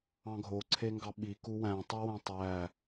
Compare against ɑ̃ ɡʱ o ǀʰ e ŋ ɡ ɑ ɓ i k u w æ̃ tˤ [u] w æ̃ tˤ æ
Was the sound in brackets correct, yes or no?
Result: no